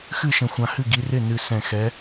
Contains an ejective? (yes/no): no